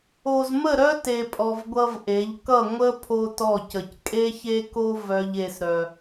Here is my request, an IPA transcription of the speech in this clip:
o˨zmə˦˨ɾœ˦ te˨pʼɔ˨v ɡʷʌ˦vʔe˨˦ʎ kʌ˦˨ŋʷə˦ pʰo˦tɔ˦˨cə˨c kʼe˦çe˦ko˦ vœ˦ʎe˦sɾœ˦

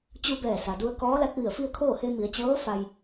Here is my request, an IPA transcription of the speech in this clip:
t͡ɕu˧bɛː˧˩ sa˩du˧ə̯kɔː˧˥ la˧˥t̚ʋi˧˩ə̯fi˥˨ə̯kʰoː˥˨ he˧mi˩˧ə̯ t͡ɕɤː˧˥ fa˧j

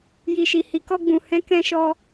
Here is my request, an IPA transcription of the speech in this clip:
ji˨ʃi˨ hi˨kɔ˧ɡ͡bũ˨hɛ̃˨˦ kɛ̃˧ʃɔ˧

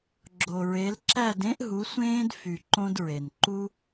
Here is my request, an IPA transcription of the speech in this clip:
ɡ͡ǁo˨ɹe˨˥l ǁæ˥˨dẽ˥ʔ ɦu˨˥sʷẽː˥d fy˨ ǃõ˥dɹe˨n ǃu˥

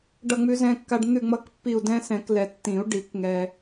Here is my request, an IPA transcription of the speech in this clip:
ɖʌ˦˨ŋ͡mʉ˦zɛ̃˦kːa˦ɖ n̪ʉ˦˨ŋ͡mʌ˦˨k pːi˦˨u̯ dɛ̃˦sɛ̃˨˩˦klɛ˨ tːĩ˨˩˦u̯ ɖi˨˩˦kŋɛ˨

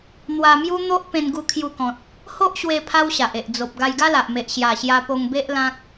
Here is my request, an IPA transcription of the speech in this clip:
n̪wa˧mju˦ n̪o˦ʔ pẽ˧nɡu˧kʰju˧kɔ̃˨t̚ | ho˦ʔɕwe˧ pʰa˦wɕa˨ʔe˨ʔ d͡zo˨p̚ ɡa˧jɡa˦la˨ʔme˨ʔ ɕja˨˩ɕja˧po˧ŋbe˦ʔ lã˦k̚

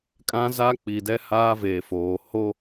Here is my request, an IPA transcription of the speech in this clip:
kʼã˦za˦k͡pi˨dɛ˦ haː˦veː˨foː˨ ho˦

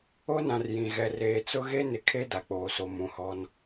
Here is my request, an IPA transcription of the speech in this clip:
o˦nã˨r jĩ˨ ɣɛ˨ reː˨t͡sʊ˦ ɣe˦nɪ˨kʰe˦ da˨k͡poː˨so˨ mũ˨hɔ˦n

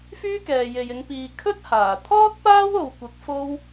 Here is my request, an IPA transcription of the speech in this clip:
fyː˥kɛː˨je˨jɪ˨˧ŋ piː˨kʰɵ˥t̚haː˨˩ t̪ʰɔː˥t̚ paː˥wo˨wkʷɪ˨˥k̚ fo˥w

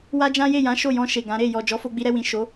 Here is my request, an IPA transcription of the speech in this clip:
wa˦d͡ʒã˦je˦˨jã˨˦ ʃo˦˨jɔ̃˧ ʃe˨ɡã˨˦ɾe˦˨ jɔ˨d͡ʒɔ˨˦ fo˧ɡ͡bi˧ɾɛ˧wĩ˨ ʃo˨˦

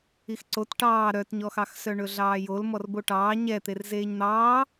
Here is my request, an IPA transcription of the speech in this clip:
ixǀot ʈɑː ɾœtɲɔxɑxsœ ɳɵɮɑːjol mɔrboʈɑː ɲɛt̪er zeːɲn̪ɑː

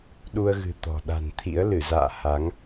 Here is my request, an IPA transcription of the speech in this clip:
ɗu˧ə̯ɣɨ̤˨˩ t̪ɔ̤˨˩ ɗa̤˨˩nt̪ʰḭ˧˥ə̯ lɨ˧˩za̰ː˧˨ ha˨˦ŋ

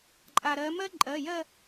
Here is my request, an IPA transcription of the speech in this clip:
ǃʼa˩ɾɜ˩˧mɜ˥ ǃʼɜ˩˧˩jɜ˥˧

